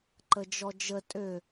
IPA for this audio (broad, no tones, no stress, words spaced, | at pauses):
ǃəd͡ʒɔd͡ʒə tʼø